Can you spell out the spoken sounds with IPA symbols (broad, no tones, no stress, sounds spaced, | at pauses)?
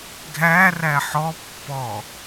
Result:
ɡʱ æ r æ ħ ɔ pː ɔ